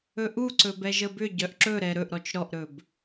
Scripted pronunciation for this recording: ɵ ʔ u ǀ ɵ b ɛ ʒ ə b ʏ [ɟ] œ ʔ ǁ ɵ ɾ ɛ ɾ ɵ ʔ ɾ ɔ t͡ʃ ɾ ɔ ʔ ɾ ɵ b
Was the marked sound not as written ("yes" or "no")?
no